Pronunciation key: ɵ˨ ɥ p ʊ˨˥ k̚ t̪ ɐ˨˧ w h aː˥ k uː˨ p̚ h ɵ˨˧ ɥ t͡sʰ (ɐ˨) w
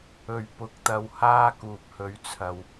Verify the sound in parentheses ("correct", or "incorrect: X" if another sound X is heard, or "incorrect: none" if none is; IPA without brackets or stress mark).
correct